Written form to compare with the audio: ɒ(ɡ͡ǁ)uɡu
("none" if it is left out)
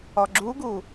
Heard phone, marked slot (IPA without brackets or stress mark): ɡ͡ǁ